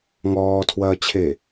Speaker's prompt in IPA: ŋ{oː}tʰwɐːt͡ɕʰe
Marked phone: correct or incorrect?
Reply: incorrect